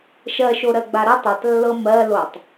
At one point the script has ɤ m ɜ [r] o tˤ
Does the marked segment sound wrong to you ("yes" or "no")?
yes